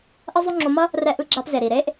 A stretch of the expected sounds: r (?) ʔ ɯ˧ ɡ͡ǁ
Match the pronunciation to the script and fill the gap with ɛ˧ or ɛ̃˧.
ɛ˧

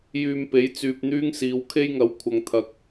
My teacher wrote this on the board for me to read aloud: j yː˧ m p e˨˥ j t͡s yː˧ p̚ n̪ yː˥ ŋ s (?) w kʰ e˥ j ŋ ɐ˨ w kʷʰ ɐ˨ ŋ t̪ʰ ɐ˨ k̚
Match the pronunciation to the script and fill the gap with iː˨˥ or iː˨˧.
iː˨˧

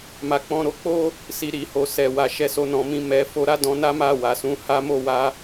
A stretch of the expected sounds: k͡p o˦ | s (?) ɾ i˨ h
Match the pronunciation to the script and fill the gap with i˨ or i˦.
i˨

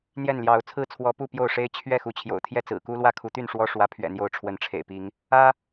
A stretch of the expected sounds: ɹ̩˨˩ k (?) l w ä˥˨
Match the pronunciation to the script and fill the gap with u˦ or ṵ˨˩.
u˦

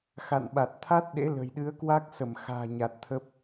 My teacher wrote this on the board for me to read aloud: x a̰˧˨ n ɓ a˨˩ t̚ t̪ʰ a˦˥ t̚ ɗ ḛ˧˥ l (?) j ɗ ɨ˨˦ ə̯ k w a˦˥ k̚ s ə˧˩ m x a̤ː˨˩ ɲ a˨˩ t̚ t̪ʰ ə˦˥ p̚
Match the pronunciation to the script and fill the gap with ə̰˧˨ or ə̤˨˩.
ə̤˨˩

